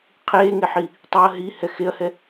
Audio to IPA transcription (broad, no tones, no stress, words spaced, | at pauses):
qʰeːŋeħi | tˤɛɐ̯ ɦihɛ xeɐ̯hɛ